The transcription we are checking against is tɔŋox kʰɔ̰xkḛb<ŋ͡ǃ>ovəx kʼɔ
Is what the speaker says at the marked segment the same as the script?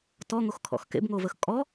no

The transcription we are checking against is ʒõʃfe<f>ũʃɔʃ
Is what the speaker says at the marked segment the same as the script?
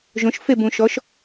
no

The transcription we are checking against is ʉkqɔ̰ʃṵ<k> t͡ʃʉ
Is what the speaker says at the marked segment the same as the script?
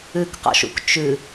yes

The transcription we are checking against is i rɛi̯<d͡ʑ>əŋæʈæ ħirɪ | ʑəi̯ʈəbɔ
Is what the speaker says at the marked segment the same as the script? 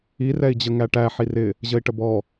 yes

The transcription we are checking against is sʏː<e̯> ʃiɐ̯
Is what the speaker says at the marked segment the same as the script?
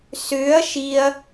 no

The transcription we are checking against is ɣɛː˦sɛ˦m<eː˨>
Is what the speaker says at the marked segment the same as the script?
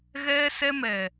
no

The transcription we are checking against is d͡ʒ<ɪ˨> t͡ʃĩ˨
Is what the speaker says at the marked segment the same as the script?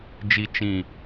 no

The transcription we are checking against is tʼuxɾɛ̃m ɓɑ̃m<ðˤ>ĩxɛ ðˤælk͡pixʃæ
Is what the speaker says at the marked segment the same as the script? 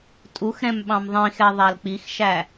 yes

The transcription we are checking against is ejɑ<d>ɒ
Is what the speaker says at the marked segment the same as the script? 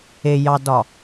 yes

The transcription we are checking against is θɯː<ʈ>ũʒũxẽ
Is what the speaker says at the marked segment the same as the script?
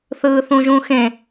no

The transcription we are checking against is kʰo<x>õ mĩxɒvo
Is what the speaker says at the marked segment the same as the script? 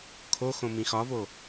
yes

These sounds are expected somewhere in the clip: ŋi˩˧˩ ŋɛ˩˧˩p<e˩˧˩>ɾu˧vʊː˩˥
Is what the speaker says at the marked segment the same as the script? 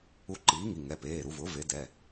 no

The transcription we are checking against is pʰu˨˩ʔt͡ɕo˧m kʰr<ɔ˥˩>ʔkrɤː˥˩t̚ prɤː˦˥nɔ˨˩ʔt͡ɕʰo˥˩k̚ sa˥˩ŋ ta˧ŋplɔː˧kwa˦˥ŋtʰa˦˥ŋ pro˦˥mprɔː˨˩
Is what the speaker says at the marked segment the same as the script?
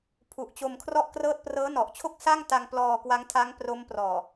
yes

